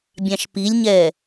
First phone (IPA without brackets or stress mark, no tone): bʲ